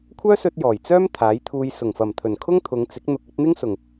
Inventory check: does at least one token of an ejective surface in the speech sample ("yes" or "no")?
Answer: no